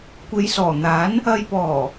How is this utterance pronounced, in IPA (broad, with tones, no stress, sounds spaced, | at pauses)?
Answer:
kʷ e˨˧ j s ɔː˨˩ n̪ aː˨˥ n | ɐ˨ j p ɔː˨˩